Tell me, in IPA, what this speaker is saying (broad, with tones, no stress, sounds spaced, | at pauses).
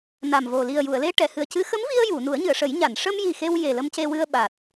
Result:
n a˨˩ m v o˨˩ l i˨˩ ə̯ j u˨˩˨ ə̯ l e˧ ʈ ɛ˨˩˨ h ɨ˨˩ ə̯ c ɨ˧˥ x ə˧˥ m v i˧ ə̯ j u˨˩˨ n u˨˩˦ ə̯ ɲ ɨ˨˩˨ ə̯ ʂ ə˨˩˦ j ɲ a˨˩˨ n ʂ ə˧ m j i˨˩ x e˧ w j e˨˩ l ə˧ m c e˧ w ɨ˧ ə̯ ɓ a˨˩ t̚